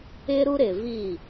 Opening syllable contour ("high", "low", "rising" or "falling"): high